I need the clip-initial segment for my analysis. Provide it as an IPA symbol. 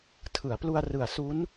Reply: tʰ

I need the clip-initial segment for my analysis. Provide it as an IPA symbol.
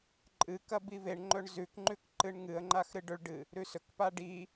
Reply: ǃʼ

